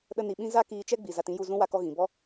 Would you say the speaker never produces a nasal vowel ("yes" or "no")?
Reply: no